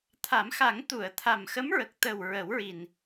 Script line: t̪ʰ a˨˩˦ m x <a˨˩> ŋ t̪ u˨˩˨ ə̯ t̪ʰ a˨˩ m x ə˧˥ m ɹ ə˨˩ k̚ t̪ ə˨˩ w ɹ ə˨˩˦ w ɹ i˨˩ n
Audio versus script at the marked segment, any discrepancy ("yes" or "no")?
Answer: yes